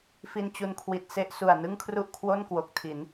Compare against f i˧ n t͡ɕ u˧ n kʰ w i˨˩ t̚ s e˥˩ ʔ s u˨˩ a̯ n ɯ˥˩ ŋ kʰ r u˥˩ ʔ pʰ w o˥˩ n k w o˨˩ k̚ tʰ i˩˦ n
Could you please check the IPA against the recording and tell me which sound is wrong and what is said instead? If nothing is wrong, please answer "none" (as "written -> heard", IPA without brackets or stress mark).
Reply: pʰ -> kʰ